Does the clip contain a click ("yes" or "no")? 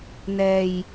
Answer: no